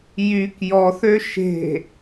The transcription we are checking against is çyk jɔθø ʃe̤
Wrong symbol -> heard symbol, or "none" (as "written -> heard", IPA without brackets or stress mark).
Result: ç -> j